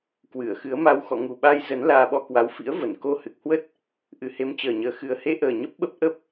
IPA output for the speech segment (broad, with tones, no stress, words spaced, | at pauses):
kwɨ˧˩ə̯xɨ˨˦ə̯ma˧w xɔ̰˧˨ŋu˨˩ɓa˧j zə˨˦n laː˧ɓɔ˧kwa˨˦w fḭ˧˥ə̯və˧˩nko˧ hɨ˨˩k̚hwə˦˥t̚ | ʔɨ˨˩he˨˦mt͡ɕəː˨˩ɲəː˨˩ xɨ˨˩ə̯he˧ʔəː˨˩ ɲə˦˥p̚ɓə˦˥p̚ ʔə˦˥p̚